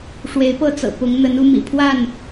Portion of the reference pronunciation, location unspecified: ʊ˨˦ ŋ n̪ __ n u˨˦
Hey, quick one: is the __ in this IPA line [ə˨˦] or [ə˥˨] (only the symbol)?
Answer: ə˨˦